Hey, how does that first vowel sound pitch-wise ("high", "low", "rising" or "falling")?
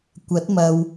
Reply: rising